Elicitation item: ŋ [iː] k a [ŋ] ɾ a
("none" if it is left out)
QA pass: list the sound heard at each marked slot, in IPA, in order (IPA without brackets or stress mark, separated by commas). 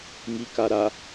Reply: i, none